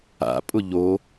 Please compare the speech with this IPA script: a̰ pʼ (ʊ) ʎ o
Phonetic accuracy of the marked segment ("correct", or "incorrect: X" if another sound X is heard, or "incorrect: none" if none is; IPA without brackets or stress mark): correct